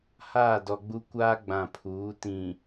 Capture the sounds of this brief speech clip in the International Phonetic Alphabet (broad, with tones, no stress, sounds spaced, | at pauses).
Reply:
h aː˦˨ d ɔ˨ ɡ͡b u˦ kʷ aː˦ ɡ͡b ã˨ pʰ uː˨˦ t ĩ˨